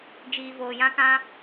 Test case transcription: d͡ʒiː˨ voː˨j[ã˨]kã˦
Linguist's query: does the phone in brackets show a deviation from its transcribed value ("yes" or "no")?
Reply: yes